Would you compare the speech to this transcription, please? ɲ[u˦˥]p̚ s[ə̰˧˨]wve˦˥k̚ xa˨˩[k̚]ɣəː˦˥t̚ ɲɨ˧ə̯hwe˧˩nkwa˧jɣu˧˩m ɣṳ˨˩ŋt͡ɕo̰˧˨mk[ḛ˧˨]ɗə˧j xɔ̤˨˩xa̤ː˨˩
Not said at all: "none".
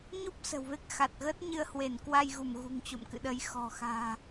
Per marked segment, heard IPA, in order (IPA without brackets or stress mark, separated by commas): u˦˥, ə̤˨˩, t̚, ɨ̰˧˨